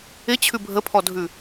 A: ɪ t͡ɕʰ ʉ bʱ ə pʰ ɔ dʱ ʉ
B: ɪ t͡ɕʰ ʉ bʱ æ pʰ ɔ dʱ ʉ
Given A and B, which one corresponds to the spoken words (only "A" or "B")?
A